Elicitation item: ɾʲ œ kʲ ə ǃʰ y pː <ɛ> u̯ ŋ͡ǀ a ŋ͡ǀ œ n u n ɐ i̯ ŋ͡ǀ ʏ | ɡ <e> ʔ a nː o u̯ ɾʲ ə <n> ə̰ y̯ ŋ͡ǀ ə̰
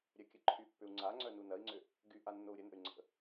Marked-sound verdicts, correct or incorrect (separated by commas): incorrect, incorrect, correct